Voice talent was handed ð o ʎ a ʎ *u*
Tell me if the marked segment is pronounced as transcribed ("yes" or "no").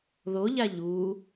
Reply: yes